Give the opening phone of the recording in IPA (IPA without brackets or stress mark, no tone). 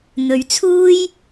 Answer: n̪